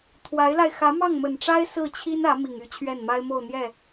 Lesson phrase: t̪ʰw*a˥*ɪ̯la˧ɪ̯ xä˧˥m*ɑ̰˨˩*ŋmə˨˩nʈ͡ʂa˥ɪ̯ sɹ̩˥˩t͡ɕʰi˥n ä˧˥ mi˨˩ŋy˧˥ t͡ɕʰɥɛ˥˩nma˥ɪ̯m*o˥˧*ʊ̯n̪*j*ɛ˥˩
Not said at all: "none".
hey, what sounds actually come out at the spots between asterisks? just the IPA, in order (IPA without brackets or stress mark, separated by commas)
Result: a˧˥, ɑ˥˩, o˥˧, j